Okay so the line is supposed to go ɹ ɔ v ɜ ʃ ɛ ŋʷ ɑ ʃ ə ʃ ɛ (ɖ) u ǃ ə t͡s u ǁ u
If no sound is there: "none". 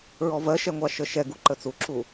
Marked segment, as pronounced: ɡ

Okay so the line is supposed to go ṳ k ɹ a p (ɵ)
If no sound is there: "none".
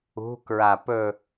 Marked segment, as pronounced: ɵ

